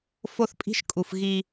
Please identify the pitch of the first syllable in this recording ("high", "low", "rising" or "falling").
high